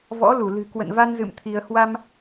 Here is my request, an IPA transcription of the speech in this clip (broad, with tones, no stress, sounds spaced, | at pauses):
v ɔ̰˧˥ l u˧˩ l ɨ̤˨˩ k w ə̰˧˨ n v a˧ n z ɨ̰˧˨ m t̪ʰ i˧ ə̯ h w a˧ m